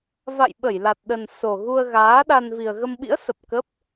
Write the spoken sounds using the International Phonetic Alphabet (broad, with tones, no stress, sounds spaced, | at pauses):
v a̰˧˨ j ɓ ə˧˩ j l a˨˩ t̚ ɗ ə˨˩ n s o˨˩ ɣ u˧ ə̯ ɣ aː˨˦ ɗ a˧ n v i˨˩ ə̯ ɣ ə˧ m ɓ ḭ˧˥ ə̯ s ə˨˩ p̚ k ə˦˥ p̚